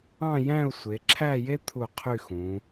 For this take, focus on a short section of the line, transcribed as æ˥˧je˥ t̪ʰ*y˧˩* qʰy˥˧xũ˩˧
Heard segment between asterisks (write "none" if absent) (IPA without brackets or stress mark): u˧˩